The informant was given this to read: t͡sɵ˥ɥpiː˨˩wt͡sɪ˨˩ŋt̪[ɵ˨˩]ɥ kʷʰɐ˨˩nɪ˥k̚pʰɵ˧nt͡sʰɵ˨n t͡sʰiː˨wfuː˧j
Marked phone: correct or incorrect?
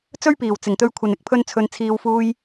incorrect: ɵ˧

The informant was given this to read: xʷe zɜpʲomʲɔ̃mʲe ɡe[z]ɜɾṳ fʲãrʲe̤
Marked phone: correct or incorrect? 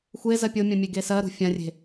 incorrect: s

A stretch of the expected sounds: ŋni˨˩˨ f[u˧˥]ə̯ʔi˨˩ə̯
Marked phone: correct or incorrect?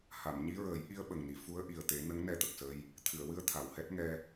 correct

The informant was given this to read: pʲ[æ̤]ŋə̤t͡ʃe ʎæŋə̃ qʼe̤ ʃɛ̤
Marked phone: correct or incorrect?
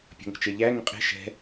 incorrect: ə̤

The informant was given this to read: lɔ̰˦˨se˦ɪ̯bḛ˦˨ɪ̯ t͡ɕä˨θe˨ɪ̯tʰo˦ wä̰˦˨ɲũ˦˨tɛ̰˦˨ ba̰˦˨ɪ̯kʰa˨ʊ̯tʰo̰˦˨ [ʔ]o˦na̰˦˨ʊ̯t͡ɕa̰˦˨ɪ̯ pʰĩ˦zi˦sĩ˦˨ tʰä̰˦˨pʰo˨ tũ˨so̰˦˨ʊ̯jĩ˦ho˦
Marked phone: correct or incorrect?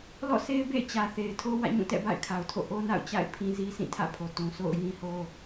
correct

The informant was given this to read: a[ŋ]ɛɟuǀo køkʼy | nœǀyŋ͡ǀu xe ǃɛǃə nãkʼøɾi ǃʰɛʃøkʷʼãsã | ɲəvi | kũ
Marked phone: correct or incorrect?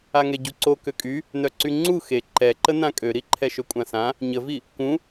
correct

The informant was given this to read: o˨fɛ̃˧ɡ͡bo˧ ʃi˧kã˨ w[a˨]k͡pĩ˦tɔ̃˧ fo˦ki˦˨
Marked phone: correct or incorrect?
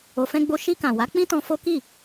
incorrect: a˨˦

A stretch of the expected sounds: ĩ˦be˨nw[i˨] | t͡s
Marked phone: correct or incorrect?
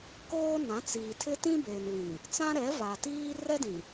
incorrect: ĩ˨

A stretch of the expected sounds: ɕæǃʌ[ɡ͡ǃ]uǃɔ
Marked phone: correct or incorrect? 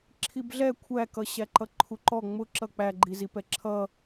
incorrect: ǃʰ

